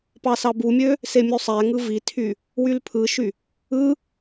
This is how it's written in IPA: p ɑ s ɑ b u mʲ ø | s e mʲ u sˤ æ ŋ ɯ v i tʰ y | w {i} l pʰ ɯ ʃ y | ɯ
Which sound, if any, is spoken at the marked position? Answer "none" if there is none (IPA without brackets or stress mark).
y